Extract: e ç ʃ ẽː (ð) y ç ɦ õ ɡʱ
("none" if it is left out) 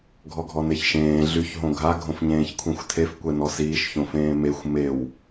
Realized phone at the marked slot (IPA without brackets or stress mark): ɮ